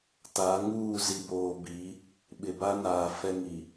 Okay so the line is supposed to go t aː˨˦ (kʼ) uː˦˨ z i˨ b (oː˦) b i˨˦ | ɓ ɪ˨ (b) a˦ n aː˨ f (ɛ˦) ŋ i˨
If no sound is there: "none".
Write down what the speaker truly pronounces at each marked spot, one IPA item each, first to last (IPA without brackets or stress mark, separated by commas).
ŋ, oː˨, b, ɛ˦